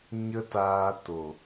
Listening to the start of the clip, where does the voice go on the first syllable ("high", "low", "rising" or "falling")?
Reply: high